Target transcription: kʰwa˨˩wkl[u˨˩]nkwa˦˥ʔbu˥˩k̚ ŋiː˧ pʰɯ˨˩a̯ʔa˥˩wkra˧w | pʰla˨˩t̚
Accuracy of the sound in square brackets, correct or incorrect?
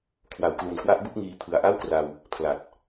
correct